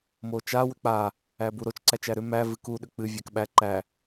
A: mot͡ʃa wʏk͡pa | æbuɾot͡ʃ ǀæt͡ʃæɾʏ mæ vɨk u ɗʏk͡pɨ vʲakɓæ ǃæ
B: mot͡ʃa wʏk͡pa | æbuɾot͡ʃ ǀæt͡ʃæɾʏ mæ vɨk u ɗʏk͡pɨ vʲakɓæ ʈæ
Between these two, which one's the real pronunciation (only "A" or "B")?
A